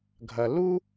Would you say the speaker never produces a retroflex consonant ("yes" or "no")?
yes